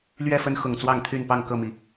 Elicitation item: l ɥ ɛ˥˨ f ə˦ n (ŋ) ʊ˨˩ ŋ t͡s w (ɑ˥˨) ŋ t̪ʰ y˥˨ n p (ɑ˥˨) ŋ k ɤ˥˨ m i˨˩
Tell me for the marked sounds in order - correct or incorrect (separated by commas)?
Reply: incorrect, correct, correct